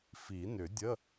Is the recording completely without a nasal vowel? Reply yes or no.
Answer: yes